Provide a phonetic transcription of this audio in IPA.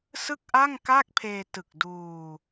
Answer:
sɯ˥˩k̚ʔa˥˩ŋkaː˥˩k̚pʰeː˧ tɯ˨˩k̚duː˧

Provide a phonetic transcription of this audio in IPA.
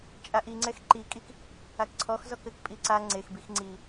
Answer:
t͡ʃʼaʔiŋ͡ǀɛx ǃikʼik | akǀʰɔxzɔk ɘkpʼi ǀa ŋ͡ǀexbix ŋ͡ǀi

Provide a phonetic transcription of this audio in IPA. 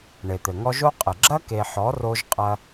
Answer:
ɳe˨t̪ɘ˨ŋɔ˦ ʒo˦qʼɘ˨ ɡ͡ǁɐ˦ke˨ħɔ˨˦ro˧ʒ qʼɐ˧

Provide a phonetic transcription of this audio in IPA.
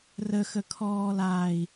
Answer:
rəxəkʰɔːlaːi̯

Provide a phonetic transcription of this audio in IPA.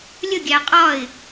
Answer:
lʲəɡʲæ qʼɒɪ̯

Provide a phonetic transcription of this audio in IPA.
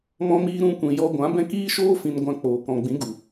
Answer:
mɔ̃˧ miː˦ ɾũ˧kʷĩ˨ jɔ˧ɡʷã˨˦bɛ̃˦k iː˦ʃoː˦ fĩ˧nɡʷã˧k͡poː˨ kɔ̃˨ɡ͡bĩ˨˦ɡu˨

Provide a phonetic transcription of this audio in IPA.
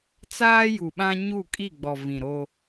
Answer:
t͡saː˦ju˨ɓã˦ɲu˦˨ kʼi˦˨ɡ͡bɔ˨ vĩ˨ɾo˦

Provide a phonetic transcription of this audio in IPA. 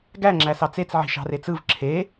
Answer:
ɡæŋ͡ǁæ sɑt͡set͡s ʕi̤ʃɑ̤ret͡sɯv ǁʰe

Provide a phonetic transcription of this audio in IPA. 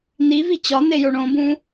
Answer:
nivi t͡ɕɒnejo ɳõbũ

